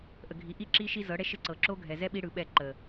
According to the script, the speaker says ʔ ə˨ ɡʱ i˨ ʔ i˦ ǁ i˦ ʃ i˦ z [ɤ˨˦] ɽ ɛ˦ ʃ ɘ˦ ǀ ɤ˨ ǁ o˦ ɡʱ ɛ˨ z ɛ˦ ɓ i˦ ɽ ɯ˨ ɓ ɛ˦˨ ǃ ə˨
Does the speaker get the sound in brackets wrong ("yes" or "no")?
no